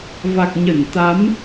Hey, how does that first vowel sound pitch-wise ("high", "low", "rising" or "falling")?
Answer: low